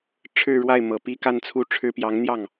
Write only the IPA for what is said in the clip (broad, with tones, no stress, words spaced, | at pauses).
ʈ͡ʂʰɻ̩˥˧ɻwa˥˩ɪ̯ mɤ˨˩pi˥˧ ka˥˧n t͡sʰu˥˩ʈ͡ʂʰɻ̩˥ pjɑ˧˥ŋn̪jɑ˥˩ŋ